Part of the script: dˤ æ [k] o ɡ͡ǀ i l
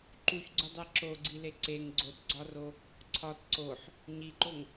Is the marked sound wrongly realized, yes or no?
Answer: yes